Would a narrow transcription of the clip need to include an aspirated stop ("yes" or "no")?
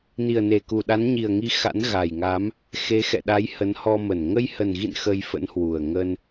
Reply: no